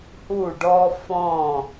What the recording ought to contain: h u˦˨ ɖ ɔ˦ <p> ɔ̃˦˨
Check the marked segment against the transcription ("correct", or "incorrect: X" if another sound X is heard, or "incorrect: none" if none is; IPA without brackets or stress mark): incorrect: f